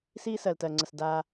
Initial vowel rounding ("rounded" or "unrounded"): unrounded